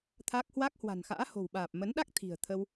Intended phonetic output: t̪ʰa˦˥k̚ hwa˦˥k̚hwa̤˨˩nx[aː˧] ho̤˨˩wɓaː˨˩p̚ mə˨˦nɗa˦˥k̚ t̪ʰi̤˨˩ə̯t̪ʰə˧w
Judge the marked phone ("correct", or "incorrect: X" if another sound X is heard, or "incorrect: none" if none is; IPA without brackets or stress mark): incorrect: a̰ː˧˥